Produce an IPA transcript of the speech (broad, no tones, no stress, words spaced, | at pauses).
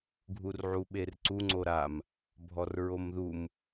ɡʱurʕuɓerǀu ŋ͡ǀoɾam | bʱɔrɹomðum